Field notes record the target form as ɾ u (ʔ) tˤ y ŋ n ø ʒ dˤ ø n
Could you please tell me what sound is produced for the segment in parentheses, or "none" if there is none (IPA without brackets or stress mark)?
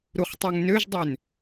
χ